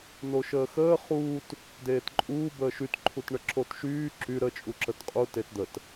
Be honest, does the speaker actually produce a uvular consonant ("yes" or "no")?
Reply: yes